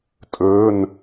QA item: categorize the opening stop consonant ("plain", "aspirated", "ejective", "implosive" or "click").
ejective